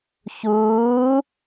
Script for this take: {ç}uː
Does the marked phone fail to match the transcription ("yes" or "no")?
no